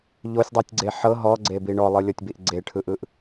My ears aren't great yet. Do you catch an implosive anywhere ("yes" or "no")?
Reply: no